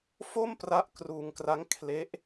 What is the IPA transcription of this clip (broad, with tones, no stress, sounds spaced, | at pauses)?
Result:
f o˥˩ m p r a˦˥ ʔ k r uː˧ ŋ k r a˦˥ ŋ kʰ l e˦˥ ʔ